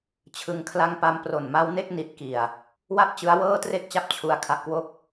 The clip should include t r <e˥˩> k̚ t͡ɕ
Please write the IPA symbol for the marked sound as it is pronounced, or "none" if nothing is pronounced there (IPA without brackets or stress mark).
e˥˩